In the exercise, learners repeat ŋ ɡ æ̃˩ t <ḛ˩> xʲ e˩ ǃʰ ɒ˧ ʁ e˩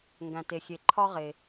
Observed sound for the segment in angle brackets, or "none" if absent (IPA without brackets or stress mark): e˩